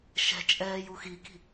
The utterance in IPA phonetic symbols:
ʃɛ̤t͡ʃʼɛːj uxiki̤

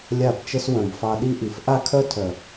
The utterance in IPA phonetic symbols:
lʲa˦˨bt͡ʃə˦s wœ̃˨bfɑ˧ɗi˦ʔi˨f ʔa˦kʰœ˦tʰœ˨

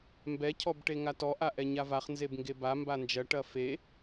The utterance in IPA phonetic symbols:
mbɛcʰɔbʈe ŋatɔʔaʔɛ ɲavaχ nzebŋɡeba mband͡ʒɐ ʈɐfe

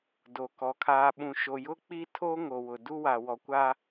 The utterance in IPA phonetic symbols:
do˨kɔ˨ kʰaː˨ɓũ˨ʃo˨jʊ˦ k͡pi˦ tʰoː˦ŋo˨wʊ˨ du˦wa˨ wɔ˨kʷa˦

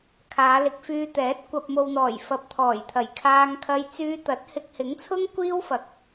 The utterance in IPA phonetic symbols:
kʰaː˨˧lɪ˨˥k̚fyː˧t̪ɛː˨˥t̚ kʷɐ˨p̚mo˨wn̪ɔː˨˩j fɐ˨p̚t̪ʰɔː˨˩jt̪ʰɐ˨˩j kʰaː˧ŋkʰɐ˧j t͡syː˧t̪ɐ˨˥t̚ hɪ˧k̚hɪ˨˥ŋt͡sʰʊ˥ŋ kʷiː˥wfɐ˨k̚

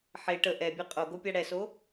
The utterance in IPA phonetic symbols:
ħe ʈə ʔɛbʲɛ qʼoɡopʲa ɽɛso

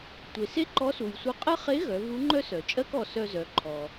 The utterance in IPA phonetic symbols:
tʷe˩se˥ǃɔ˧˥su˩j sʷœ˧qʼɜ˥ χe˧˥ɣœ˩˧ vu˧˥ŋ͡ǃœ˥sœ˩t͡ʃʼɜ˥k ɔ˩˧sœ˧zœ˩˧ǃʰɔ˩

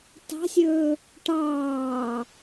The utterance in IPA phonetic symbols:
tɑ̤sʲɵː | ʈɑː

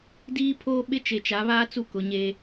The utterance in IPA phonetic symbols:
diː˦pʰoː˦ɓɪ˦ t͡ʃe˨t͡ʃa˨˦βaː˦ t͡su˦ kʊ˨˦ɲe˦

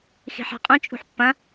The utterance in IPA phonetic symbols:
xi̤ħa̤qʼũ t͡ʃʼṳħpːɐ̃

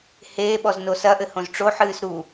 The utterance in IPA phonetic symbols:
heːɓɔzno sɐʔɘ hõzʈ͡ʂo ħɨːsɾu

